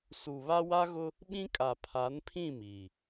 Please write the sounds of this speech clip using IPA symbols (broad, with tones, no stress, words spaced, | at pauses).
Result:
su˨βa˦ wa˦ɣʊ˦ | ɓĩ˦kʼa˨ pʰa˨˦npʰĩ˦˨ miː˨